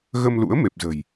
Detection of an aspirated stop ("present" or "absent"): absent